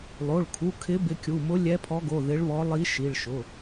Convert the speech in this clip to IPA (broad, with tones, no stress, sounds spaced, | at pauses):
lˠ o˩˧˩ ɭ kʰ u˩˧˩ kʰ ɪ˨˦ b ɪ˨˦ kʲ u˩˧˩ m ʊ˨˦ lʲ ɛ˨˦ pʰ ɔ˨˦ ɡ o˩˧˩ ð ɪ˨˦ ɭ β ɔ˨˦ lˠ i˨˦ ʃ i˩˧˩ ɭ ʃ ʊ˩˧˩